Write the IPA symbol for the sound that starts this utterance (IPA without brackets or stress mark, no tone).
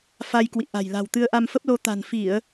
f